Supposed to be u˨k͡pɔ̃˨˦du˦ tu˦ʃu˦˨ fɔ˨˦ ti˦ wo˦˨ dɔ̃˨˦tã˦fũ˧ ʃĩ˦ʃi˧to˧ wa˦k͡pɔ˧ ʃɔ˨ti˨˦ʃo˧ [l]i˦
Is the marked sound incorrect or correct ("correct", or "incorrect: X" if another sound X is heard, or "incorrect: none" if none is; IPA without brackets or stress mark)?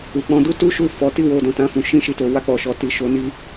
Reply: incorrect: n